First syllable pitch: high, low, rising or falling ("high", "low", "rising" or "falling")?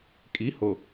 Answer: rising